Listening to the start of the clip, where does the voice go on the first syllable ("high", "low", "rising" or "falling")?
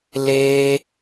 high